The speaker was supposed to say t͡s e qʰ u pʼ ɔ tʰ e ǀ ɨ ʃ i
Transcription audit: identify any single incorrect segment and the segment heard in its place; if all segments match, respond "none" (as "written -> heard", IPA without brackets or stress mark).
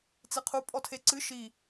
none